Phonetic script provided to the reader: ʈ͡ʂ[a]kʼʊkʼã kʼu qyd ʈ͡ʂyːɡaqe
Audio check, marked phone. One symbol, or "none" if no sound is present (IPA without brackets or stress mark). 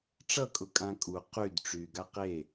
ʌ